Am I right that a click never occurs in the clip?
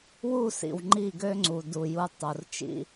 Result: no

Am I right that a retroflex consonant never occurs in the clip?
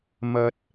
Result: yes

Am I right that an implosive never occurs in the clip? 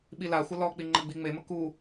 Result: no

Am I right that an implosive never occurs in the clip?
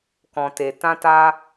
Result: yes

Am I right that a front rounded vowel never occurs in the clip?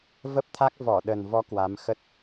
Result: yes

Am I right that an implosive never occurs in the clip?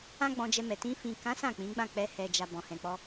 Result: yes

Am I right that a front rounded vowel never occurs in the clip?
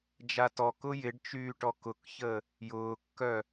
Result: no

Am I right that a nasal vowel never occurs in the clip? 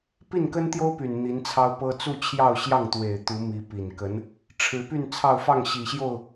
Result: yes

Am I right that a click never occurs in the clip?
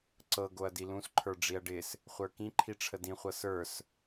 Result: no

